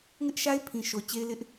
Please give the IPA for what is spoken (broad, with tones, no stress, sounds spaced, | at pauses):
ŋ ɪ˦ ʔ ʃ a˦ ɪ̯ pʰ ĩ˨ ʃ o˨ t͡ɕ e˦ ɪ̯ l ɪ˦ ʔ